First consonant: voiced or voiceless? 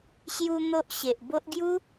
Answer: voiceless